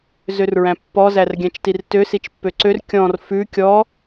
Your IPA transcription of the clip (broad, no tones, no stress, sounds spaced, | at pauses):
z ø r ɹ æ̃ pː ɔ z æ r ɡʲ æ̃ t͡ʃ t i r t ø s i t͡ʃ pː ø ǀ ø r kʲ ɔ̃ r f ʉ kʲ ɔ